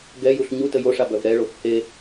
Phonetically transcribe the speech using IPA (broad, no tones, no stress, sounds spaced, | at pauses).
ɡ ɛ j u ɬ ɲ u t ə j o ʂ a b œ v ɾ ɛ ɭ o f h e